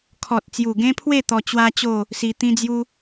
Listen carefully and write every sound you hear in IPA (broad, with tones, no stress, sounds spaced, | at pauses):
kʰ ɔ˨ t̚ t͡s j u˨˩ ɡ ẽ˦ pʰ w e˥˧ t̪ ɔ˧ t͡ɕ w a˦ t͡ɕ o˥˧ | s i˧ t̪ ĩ˦ d͡z j u˦